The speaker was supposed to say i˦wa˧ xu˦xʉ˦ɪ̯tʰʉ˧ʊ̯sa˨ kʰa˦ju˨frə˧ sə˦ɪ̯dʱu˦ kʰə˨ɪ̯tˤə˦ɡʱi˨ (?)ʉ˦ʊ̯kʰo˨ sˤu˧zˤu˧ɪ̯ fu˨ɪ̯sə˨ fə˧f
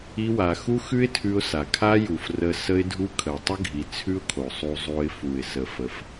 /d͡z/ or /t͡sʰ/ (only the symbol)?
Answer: t͡sʰ